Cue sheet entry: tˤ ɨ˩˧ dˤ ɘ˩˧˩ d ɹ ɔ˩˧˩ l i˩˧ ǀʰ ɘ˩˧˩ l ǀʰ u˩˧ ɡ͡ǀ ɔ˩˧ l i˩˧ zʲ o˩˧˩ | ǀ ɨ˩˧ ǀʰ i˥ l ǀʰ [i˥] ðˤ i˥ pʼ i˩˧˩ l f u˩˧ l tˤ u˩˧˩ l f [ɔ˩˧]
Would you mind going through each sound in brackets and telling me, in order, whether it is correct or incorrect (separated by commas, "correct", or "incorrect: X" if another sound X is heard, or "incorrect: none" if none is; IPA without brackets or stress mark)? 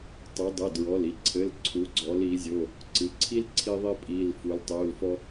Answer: correct, incorrect: ɔ˥